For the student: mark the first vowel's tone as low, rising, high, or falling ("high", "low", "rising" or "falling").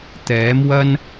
rising